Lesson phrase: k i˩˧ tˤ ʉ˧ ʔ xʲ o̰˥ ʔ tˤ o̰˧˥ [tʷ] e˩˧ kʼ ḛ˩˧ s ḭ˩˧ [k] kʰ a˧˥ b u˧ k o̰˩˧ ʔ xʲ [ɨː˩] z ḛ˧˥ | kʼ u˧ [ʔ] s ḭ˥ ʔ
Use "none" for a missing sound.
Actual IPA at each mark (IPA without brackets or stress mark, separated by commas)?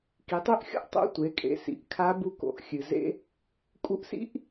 tʷ, ʔ, ɨ˩, ʔ